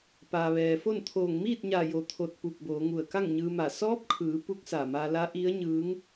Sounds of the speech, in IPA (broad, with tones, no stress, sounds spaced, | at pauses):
p aː˩ ʋ ɛː˩ f o˥˨ n t̪ʰ oː˧˩ ŋ m iː˥˨ t̚ ɲ a˧˩ j o˧˩ t̪ʰ o˧˩ t̚ p u˧˩ k̚ b oː˩˧ ŋ u˧˩ ə̯ k a˥˨ ŋ ɲ ɯː˧ m a˧˩ s ɔː˧˥ p̚ kʰ ɯː˩˧ p u˧˥ k̚ s a˧˩ m a˧ l a˧˥ ʔ i˧˥ ə̯ ɲ ɯː˧˥ ŋ